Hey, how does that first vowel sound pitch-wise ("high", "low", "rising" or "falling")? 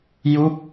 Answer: falling